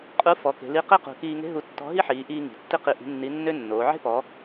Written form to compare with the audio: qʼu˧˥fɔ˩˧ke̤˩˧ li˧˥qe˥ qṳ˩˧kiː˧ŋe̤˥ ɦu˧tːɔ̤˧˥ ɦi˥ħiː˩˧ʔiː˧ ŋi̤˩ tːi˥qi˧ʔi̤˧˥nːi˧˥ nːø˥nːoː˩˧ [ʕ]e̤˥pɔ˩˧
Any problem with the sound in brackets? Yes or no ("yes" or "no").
no